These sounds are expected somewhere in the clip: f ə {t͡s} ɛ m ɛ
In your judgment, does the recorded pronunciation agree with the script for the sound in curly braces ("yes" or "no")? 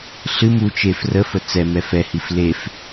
yes